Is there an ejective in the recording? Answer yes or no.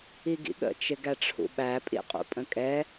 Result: yes